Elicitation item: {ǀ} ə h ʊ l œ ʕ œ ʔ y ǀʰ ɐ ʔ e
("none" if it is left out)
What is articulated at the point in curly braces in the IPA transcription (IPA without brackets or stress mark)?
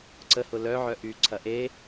ǀ